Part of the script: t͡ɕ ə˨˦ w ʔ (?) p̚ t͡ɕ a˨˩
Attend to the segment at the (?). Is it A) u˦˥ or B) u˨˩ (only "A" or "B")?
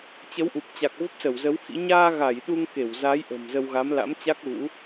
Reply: B